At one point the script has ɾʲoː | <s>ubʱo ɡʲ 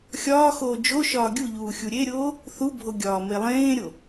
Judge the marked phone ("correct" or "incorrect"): incorrect